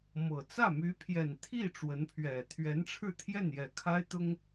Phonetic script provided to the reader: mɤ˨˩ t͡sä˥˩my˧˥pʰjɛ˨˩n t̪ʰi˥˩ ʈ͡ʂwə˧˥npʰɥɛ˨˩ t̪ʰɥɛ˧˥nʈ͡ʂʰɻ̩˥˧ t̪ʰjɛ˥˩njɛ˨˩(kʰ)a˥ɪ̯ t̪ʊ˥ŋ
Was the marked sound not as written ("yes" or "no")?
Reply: no